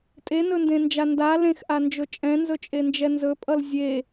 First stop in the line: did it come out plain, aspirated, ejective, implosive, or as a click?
ejective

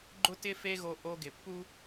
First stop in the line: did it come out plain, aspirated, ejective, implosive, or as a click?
click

